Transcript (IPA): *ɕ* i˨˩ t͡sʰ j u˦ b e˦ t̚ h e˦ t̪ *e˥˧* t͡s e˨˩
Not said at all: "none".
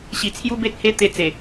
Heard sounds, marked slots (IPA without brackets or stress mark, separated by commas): ɕ, e˧